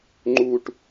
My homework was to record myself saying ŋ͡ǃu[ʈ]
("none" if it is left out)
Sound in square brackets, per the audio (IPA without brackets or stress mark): ʈ